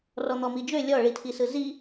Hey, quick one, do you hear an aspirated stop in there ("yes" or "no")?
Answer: yes